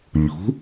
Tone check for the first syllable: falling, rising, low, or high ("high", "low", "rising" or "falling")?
rising